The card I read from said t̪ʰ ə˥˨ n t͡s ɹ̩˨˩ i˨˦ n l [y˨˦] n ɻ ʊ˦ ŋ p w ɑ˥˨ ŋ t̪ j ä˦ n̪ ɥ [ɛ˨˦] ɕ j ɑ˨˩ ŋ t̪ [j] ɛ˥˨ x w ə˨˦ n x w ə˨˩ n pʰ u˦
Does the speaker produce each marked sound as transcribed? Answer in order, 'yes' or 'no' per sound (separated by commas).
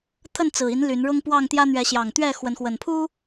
yes, yes, no